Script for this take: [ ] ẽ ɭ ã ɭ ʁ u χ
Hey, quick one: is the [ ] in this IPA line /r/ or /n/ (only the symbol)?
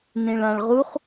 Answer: n